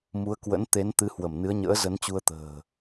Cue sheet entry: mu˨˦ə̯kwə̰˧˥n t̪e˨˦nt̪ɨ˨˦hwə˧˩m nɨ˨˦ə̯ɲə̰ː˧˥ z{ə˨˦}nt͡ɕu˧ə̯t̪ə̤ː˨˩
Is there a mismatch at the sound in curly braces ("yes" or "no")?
no